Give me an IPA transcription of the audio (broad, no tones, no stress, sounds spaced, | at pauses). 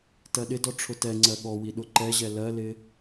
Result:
t ɜ ɗ ɪ d ɔ ʈ͡ʂʰ ʊ t ɛ ŋ͡ǀ ɜ ɠ ɔ w i ɗ ʊ ǃ ɛ ʑ ɛ l ɜ l ɪ